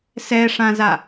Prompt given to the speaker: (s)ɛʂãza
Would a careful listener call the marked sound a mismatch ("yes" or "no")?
no